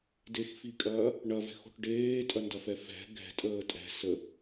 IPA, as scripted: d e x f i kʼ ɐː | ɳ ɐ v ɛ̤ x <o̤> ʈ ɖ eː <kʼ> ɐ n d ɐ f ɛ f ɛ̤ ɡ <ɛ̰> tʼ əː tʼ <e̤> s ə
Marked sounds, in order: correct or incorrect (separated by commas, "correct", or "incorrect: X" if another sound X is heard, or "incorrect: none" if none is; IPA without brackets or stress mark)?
correct, incorrect: tʼ, incorrect: ɛ̤, incorrect: ɛ̤